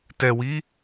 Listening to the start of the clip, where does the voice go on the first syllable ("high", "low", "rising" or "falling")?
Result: low